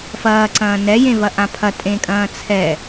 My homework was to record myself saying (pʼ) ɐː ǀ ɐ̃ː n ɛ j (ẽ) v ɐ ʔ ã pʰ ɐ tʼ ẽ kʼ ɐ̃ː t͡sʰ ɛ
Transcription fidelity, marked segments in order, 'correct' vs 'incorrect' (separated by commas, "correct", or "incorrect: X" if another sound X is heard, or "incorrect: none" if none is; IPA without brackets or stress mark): incorrect: f, correct